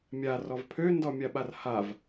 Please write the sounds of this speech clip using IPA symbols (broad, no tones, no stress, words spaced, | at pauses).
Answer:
mʲarɔv pʰøndɔmʲaɓar hav